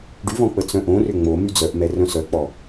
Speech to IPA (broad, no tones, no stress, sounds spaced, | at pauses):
ɖ y v ɔ̃ k͡p ə t͡s œ̃ ʔ õ r ʏ ŋ͡m o m y d͡z œ ʔ m ɛ r œ̃ s œ k͡p ɔ